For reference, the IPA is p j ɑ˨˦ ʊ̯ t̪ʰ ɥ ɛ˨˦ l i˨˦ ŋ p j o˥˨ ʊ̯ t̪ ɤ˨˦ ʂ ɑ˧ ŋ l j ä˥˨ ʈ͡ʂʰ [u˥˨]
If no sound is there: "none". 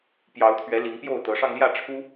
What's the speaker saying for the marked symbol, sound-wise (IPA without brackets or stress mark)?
u˦